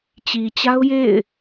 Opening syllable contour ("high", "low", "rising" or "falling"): low